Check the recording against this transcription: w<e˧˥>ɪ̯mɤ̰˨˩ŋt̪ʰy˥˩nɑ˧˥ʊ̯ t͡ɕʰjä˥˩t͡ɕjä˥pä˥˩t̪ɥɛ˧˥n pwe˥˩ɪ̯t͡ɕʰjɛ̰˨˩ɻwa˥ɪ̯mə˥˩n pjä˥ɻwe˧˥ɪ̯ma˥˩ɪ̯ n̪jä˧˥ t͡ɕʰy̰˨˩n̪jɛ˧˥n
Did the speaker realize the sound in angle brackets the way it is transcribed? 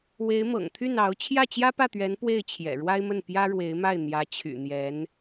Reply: yes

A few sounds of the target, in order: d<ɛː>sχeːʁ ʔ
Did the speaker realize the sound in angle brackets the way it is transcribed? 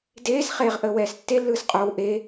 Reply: no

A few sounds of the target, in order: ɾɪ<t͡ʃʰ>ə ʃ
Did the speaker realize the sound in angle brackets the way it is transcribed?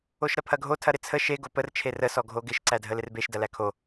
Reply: no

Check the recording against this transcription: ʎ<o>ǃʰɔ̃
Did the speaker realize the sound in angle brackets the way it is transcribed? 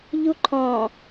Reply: no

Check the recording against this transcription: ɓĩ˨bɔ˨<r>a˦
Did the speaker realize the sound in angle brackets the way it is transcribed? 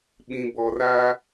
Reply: yes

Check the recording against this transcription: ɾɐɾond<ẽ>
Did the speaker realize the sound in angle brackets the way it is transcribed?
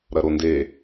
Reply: no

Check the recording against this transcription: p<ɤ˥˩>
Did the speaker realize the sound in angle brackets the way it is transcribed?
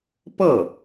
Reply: yes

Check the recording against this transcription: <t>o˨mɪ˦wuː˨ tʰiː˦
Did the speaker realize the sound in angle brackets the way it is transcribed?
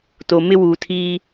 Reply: yes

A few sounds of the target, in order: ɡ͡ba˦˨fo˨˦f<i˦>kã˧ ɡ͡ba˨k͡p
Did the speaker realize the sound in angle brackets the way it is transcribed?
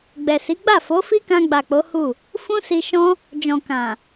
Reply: yes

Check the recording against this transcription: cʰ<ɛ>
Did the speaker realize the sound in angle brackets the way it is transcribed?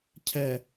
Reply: yes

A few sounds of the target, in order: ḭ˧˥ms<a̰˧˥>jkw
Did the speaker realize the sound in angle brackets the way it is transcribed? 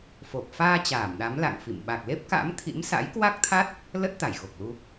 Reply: yes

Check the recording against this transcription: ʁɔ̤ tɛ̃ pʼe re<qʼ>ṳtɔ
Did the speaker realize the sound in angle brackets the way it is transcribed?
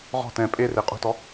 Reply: yes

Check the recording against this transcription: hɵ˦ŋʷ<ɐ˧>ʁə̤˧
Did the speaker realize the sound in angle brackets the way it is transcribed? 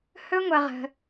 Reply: yes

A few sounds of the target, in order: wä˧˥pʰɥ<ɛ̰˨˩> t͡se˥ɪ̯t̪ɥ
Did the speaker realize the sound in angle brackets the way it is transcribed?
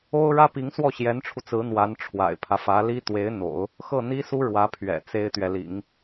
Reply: yes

